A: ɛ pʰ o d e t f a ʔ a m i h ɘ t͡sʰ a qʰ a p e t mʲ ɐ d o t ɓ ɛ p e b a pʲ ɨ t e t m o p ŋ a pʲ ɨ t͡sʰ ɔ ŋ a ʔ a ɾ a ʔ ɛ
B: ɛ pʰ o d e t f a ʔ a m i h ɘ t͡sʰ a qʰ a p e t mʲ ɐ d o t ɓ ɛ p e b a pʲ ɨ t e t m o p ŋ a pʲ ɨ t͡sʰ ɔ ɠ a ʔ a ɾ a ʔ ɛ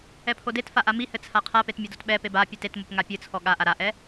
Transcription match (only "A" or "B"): B